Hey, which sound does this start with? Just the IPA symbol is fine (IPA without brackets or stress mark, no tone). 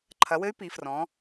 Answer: ǃʰ